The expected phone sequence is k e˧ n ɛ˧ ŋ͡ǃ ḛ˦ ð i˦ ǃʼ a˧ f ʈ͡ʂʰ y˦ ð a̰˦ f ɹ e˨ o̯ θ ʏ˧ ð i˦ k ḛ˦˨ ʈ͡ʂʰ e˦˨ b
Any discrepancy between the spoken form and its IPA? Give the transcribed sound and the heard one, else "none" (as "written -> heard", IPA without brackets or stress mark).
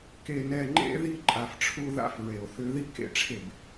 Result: y˦ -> u˦